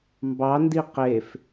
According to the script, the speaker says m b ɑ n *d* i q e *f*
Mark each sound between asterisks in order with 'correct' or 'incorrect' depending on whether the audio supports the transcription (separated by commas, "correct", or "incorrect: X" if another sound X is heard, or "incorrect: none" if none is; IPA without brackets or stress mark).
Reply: correct, correct